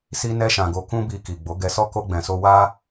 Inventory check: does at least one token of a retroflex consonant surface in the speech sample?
no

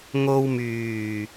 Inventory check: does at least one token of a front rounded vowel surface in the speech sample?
yes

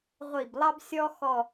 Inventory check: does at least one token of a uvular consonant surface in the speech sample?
yes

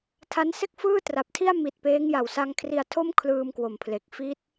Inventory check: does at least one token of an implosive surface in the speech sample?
no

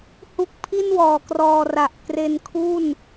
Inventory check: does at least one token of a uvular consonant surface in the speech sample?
no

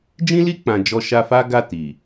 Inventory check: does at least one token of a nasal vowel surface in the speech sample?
yes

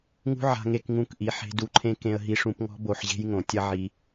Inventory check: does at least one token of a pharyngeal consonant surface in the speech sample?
yes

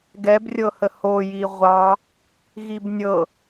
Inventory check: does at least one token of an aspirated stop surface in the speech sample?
no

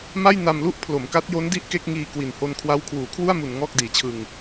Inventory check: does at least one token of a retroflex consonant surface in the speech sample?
no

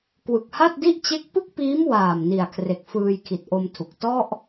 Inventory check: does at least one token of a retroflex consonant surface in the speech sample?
no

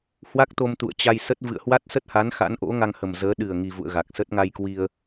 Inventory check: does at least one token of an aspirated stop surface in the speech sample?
no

